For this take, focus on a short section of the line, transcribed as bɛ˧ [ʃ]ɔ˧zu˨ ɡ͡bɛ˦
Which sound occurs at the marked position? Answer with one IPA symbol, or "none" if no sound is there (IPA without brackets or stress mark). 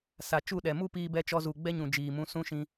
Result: t͡ʃ